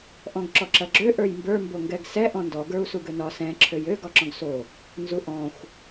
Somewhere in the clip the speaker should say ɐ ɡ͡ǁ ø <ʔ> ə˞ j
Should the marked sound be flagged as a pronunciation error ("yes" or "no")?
no